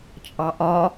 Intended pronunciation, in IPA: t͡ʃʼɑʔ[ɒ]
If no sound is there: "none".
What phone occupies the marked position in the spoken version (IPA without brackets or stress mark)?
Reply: ɒ